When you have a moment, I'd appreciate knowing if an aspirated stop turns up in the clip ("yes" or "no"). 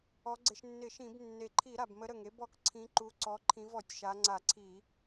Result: yes